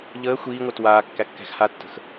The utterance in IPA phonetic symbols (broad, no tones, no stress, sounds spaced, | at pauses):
ʎ əː xʷ iː ŋʷ əː t w aː kː æ kː æ̤ x h a tː ə̤ x